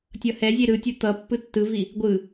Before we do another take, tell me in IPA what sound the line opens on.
tʲ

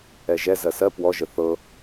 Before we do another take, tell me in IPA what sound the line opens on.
ɛ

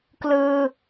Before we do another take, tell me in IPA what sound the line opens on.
k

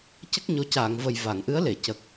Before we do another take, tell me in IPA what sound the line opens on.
c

